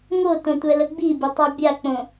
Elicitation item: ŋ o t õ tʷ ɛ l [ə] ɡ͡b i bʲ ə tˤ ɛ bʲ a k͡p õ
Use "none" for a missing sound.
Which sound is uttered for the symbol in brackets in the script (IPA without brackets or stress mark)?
ə